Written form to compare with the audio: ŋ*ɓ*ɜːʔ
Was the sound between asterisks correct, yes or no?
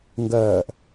no